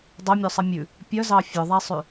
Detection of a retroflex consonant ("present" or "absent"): absent